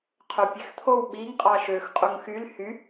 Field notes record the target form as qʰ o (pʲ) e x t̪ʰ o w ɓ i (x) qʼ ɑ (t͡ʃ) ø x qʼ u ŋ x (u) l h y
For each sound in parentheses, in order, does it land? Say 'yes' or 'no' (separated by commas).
yes, no, no, no